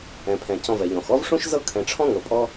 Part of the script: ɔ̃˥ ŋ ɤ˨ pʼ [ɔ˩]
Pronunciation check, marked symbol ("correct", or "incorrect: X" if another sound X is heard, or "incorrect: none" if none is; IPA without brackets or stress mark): incorrect: ɔ˦